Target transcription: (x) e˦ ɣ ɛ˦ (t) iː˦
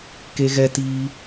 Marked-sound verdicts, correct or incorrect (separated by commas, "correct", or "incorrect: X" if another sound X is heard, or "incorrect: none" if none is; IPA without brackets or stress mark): incorrect: k, correct